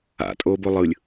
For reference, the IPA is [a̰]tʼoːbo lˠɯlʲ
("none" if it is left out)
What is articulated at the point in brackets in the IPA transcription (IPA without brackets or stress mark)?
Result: a̰